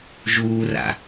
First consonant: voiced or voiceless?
voiced